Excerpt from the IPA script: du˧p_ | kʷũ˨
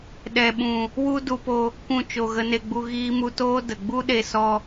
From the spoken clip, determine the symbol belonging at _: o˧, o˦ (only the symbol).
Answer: o˧